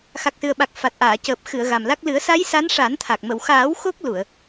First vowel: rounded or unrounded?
unrounded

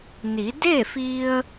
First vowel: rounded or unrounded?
unrounded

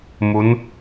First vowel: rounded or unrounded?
rounded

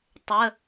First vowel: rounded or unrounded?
unrounded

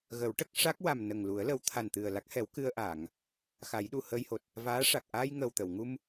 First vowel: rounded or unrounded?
unrounded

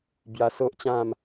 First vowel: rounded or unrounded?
unrounded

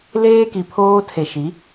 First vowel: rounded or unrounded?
unrounded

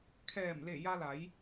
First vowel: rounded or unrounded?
unrounded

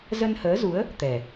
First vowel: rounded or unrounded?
unrounded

